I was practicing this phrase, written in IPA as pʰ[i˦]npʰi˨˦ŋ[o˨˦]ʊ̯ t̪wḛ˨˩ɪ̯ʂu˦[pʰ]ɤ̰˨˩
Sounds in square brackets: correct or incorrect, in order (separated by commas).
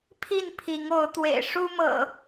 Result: incorrect, correct, incorrect